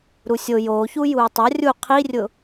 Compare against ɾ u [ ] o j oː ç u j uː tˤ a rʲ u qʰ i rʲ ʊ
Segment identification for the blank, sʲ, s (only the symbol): sʲ